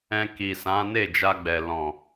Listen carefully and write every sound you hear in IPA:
ɛ̃˧ k i˨ s ã˨˦ n e˦˨ d͡ʒ a˧ ɡ͡b ɛ˨ l ɔ̃˨

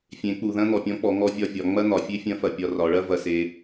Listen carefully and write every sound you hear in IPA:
fʲ ẽ˩˧ k͡p u˩ ð ɐ̃˥ n̪ ɔ˩ pʲ ɔ̃˧˥ k͡p ɔ˩˧ ŋ ɔ˧ vʲ ɒ˧ vʲ ɒ˩˧ ŋ͡m ɐ˥ n̪ ɒ˩ fʲ e˥ fʲ ɐ̃˧˥ f ɐ˩ pʲ ɒ˧ r ɒ˩˧ ɭ ɐ˥ v ɐ˧ s e˧

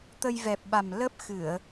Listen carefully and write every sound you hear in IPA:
t̪ ə˧ j v ɛ˨˩ p̚ ɓ a˨˩ m l ə˦˥ p̚ x ɨ˧˩˨ ə̯

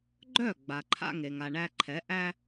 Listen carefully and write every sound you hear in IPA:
ɡ͡ǃ œ˥˩ ɡ͡b a˩ ǃʰ a̰˧ ŋ e˩ ŋ a˩ ɳ æ˧ ǃʰ ɛ˩˥ ʔ æ˥

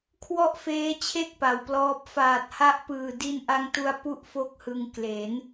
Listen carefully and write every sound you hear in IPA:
kʰ w ɔ˥˩ ʔ f eː˦˥ t͡ɕʰ e˥˩ k̚ p a˩˦ w p l ɔː˦˥ p̚ f aː˨˩ t̚ h a˦˥ ʔ p ɯː˨˩ d i˧ n ʔ a˧ ŋ t u˧ a̯ p u˥˩ ʔ f o˥˩ k̚ h ɯ˧ ŋ k l e˩˦ n

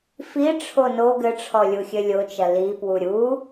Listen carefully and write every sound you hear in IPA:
f i ʈ͡ʂʰ o n o ɡ ɘ ʈ͡ʂʰ ɔ lʲ u xʲ ɘ lʲ o t͡ʃ ɐ l i p w u ɾʲ u

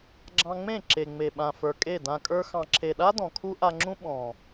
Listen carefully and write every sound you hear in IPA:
ɡ͡ǁ ɑ̃˧ ŋ͡m ẽ˦˨ ǁ e˨ ŋ͡m e˨ ɓ ã˨ f ə˞˨ kʼ e˦˨ d ã˧ kʼ ə˞˦ x ɑ̃˨ ǁʰ e˨ ɗ a˦ d ɔ̃˨ kʰ u˦ ʔ a˧ ŋ͡ǁ ũ˦ ɓ ɔ̃˨

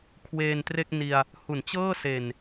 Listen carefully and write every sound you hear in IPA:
kʰ w eː˧ n t r e˥˩ k̚ n i˧ a̯ | h u˩˦ n t͡ɕ ɤː˥˩ s e˨˩ n

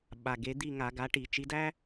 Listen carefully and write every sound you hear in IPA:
ɓ a˩˧˩ ɡ e˨˦ d̪ i˥˨ ŋ a˧˩˧ ɡ a˨˦ ʈ i˧˩˧ t͡ʃ i˨˦ d æ˥

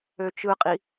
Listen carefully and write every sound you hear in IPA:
ø t͡ʃ ɯ qʼ i

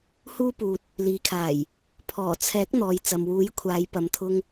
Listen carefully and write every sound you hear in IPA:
h uː˧ p uː˨ t̚ | l iː˨ kʰ aː˨˩ j | pʰ ɔː˨˩ t͡sʰ ɛː˨˥ k̚ n̪ ɔː˨ j t͡s ɐ˨ m w uː˨˥ j kʷʰ aː˨˧ j p ɐ˨˧ m t̪ʰ ʊ˧ ŋ

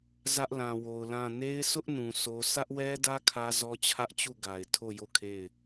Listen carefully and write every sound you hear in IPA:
z ä˦ ʔ l ã˨ w o˨ ʊ̯ l ã˦˨ n e˦ ɪ̯ s ʊ˦ ʔ n ũ˨ s o˦ s ä˦ ʔ w ɛ˦ d ä˦ kʰ ä˦ z ɔ˦ t͡ɕʰ ä˦ ʔ t͡ɕ u˦˨ ɡ a˨ ɪ̯ tʰ o˦˨ j o˦˨ kʰ e˦˨ ɪ̯

